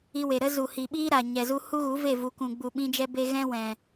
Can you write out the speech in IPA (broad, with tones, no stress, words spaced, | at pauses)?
i˧we˨ɾə˦ zu˨hi˨ɓiː˦ ɾa˨ɲɛ˨zu˧ hu˦ɣu˨˦ve˦˨ vu˨kũ˨ɡ͡bu˨ ɓĩ˧d͡ʒɛ˧be˧ ɣɛ̃˦wɛ̃˨